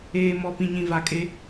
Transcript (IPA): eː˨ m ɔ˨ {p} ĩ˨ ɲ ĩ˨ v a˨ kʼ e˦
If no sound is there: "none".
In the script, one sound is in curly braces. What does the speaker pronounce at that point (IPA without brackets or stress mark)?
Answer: p